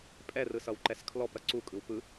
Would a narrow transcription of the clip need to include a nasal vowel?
no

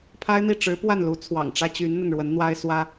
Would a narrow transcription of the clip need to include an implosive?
no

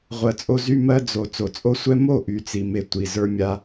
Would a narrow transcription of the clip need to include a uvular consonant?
yes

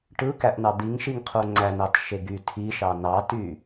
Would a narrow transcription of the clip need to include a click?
yes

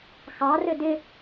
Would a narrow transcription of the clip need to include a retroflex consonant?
no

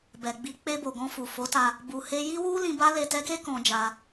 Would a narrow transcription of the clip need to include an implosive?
no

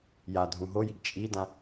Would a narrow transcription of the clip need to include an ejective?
yes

